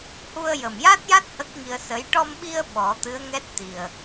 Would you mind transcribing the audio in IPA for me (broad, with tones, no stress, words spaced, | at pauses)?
hu˧ə̯jə˨˩mja˦˥t̚ja˦˥t̚ hə˦˥k̚ŋi˧ə̯sə˧˥j ʈɔ˧mɓi˧ə̯ ɓɔ˨˩˦t̪ɨ˧˥ə̯ŋɛ˦˥t̚ t̪i˨˩ə̯